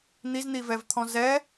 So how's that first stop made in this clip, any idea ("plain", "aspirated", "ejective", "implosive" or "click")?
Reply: aspirated